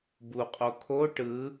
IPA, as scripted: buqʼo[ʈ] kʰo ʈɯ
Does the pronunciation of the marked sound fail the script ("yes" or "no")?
yes